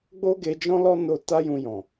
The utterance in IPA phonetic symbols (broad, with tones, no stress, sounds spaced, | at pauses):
ɡ͡b o˦ ɡ e˧ d͡ʒ ɔ̃˦ l ɔ˦ n o˧ t a˦ j ũ˧ j ɔ̃˨